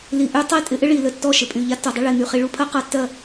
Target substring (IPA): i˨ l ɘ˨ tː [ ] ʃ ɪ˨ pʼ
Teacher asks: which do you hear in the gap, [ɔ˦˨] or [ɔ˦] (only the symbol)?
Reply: ɔ˦˨